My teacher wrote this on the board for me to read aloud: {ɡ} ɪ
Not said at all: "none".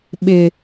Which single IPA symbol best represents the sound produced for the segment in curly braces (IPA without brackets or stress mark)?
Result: ɓ